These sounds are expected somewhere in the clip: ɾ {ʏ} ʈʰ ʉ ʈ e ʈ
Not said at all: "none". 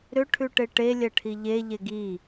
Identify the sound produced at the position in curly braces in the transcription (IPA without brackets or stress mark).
ʏ